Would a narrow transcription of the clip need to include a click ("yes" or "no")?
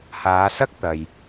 no